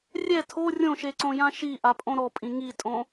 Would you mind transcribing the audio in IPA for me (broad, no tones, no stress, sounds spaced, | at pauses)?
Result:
rʲ ɛ tʰ o rʲ õ ʃ e ǀ õ j ã ʃ i ʔ a pʼ õ ɾ ɔ pʼ ĩ ŋ i tʼ õ